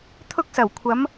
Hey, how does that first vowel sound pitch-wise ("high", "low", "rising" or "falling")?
high